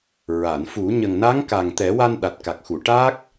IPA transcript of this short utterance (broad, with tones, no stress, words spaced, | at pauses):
ɹa˨˩˨nfu˨˩˦ ɲə˨˩ŋna˧˥ŋ ka˨˩ŋ t̪ɛ˨˩˦wa˧n ɗa˨˩t̚ka˨˩k̚xu˨˩˨ ʈa˦˥k̚